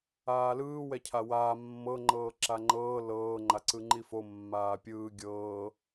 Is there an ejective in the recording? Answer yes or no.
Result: no